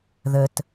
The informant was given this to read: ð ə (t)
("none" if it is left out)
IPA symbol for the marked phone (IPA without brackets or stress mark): t